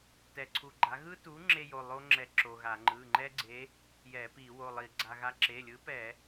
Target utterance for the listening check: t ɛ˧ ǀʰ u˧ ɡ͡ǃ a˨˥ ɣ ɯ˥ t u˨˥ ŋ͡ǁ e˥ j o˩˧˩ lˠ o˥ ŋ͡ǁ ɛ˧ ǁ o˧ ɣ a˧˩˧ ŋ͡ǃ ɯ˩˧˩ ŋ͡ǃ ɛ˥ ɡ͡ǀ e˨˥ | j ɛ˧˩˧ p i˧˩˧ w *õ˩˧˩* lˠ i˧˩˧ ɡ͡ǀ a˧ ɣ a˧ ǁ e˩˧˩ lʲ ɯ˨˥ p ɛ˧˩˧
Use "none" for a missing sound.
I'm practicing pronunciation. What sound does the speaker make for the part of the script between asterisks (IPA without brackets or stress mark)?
o˩˧˩